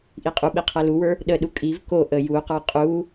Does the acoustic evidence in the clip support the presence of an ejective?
yes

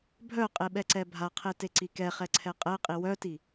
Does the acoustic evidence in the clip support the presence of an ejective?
yes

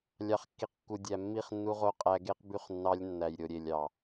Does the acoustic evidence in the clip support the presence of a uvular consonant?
yes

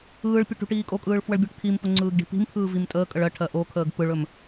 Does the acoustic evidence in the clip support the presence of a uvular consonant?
no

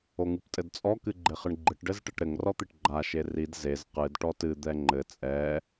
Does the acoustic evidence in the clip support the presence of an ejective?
yes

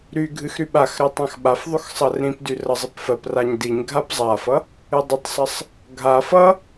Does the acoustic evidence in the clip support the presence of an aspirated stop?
no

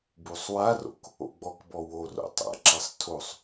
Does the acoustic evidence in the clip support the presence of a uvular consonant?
no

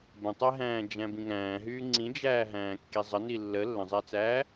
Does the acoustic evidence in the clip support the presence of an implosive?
no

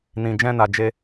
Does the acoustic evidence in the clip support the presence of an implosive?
no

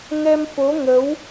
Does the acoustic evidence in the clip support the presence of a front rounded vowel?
no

